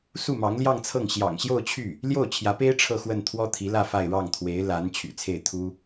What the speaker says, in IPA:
s u˥˩ m ɑ˧˥ ŋ l j ɑ˥˧ ŋ t͡sʰ ɤ˥˩ ŋ ɕ j ɑ̰˨˩ ŋ ɕ j o˥˧ ʊ̯ t͡ɕʰ y˥˩ | l j o˥˩ ʊ̯ t͡ɕʰ j ä˧˥ p e˥ ɪ̯ ʈ͡ʂʰ ɤ˥˧ x w ə˥˩ n t̪ʰ w ɔ˥ t̪ʰ i˧˥ l ä˥˧ f a˥˧ ɪ̯ ɻ ɑ˥˩ ŋ t̪ʰ w e˧˥ ɪ̯ l a˧˥ n t͡ɕʰ y̰˨˩ t͡sʰ e˥˩ ɪ̯ t̪ʰ u˥

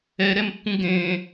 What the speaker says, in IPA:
ɛ ɾ ɛ m pː ũ ɡ ẽ

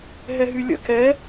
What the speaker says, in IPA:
ɦ ɛ ɦ y lʲ ə̰ k ɛ

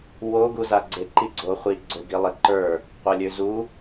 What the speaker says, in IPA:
w o ɡ u z a ɡ͡ǀ e ǃ i ɡ͡ǀ o χʷ i ɡ͡ǀ ø ɡ i lˠ i ǃ ə˞ | qʷ e lʲ ø z u

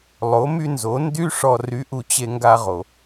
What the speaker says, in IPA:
lˠ o˩˧ m y˧ n z o˩˧ n d y˥ ʂ ɔ˧ r y˧˥ ʔ u˧ t͡ɕ e˧ ŋ ɡ a˧ ʁ o˩

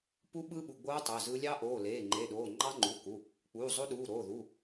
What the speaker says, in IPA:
p u˦˥ ɓ ɯ˦˥ ɓ u˩˧˩ ɡ͡b oː˦˥ tˤ ø˩˧˩ z ɯ˦˥ lʲ ɑ˦˥ ʔ oː˩˧˩ l eː˩˧˩ ŋ͡ǃ e˩˧˩ ɗ oː˩˧˩ ŋ͡ǃ ɑ˦˥ ŋ͡ǃ u˩˧˩ k u˩˧˩ | k͡p uː˩˧˩ zˤ o˦˥ ɗ uː˩˧˩ ɾ oː˩˧˩ ð u˩˧˩

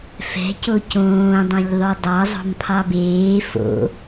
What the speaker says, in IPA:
f ɛ̤ c o c õː dˤ õ ʎ ðˤ ø dˤ ɑ zˤ o̤ m pʰ ɑ b eː f o̰

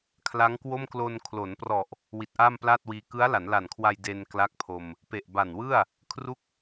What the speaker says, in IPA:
kʰ l a˦˥ ŋ k w o˥˩ m k l o˧ n kʰ l o˩˦ n p r ɔ˨˩ ʔ | w i˨˩ t̚ ʔ aː˥˩ m p l aː˥˩ t̚ w iː˧ k ɯ˦˥ a̯ l a˩˦ n l a˨˩ n kʰ w a˧ j d e˧ n k l a˥˩ k̚ pʰ o˧ m | p e˨˩ ʔ b a˨˩ n w ɯ˥˩ a̯ | kʰ r u˦˥ k̚

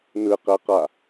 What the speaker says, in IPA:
n ɯ q ɛ q a

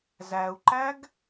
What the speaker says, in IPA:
z æ u̯ ǃ æ ɡ

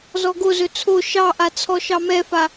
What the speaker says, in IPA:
z ɔ ɡ o z ɵ t͡sʰ o ʃ ɑ ʔ a t͡sʰ ɔ ʃ ɑ m ɛ f a

